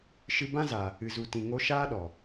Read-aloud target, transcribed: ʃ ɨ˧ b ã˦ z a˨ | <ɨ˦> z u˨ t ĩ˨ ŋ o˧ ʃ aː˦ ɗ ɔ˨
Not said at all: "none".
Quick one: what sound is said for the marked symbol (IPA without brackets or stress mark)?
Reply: ɨ˨